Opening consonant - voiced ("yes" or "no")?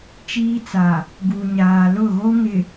no